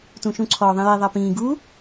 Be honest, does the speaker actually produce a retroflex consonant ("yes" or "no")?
no